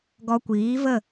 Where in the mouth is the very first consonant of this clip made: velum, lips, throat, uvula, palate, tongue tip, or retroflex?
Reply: velum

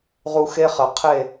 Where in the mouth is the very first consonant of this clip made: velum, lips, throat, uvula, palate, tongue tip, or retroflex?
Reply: uvula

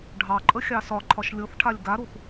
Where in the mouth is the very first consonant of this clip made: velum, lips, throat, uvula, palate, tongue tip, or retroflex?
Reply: retroflex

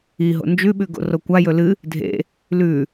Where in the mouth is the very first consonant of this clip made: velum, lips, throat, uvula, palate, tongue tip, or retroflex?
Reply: throat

